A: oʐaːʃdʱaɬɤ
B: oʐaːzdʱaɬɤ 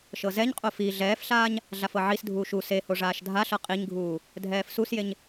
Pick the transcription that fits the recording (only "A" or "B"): A